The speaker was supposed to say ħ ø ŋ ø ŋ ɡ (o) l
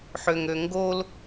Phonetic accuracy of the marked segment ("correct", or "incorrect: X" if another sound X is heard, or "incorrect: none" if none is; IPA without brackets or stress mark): correct